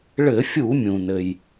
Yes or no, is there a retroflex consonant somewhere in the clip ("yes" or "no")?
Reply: yes